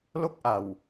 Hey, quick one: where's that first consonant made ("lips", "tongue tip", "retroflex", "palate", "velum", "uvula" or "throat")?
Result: tongue tip